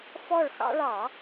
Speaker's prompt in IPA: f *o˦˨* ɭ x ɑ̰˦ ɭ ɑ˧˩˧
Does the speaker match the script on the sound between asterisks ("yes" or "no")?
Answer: no